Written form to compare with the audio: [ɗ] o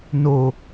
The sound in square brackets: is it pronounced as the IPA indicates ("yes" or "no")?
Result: no